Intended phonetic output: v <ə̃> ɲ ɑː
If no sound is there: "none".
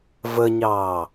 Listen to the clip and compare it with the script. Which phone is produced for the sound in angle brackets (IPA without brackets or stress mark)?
ə